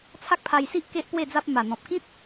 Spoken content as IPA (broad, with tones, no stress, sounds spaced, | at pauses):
t͡sʰ a˦ k̚ pʰ a˧ j s i˦ ʔ k e˦ ʔ p w e˥˧ d͡z a˦ p̚ m a˨˩ n̪ ɔ̃˨ p̚ k ĩ˦ t̚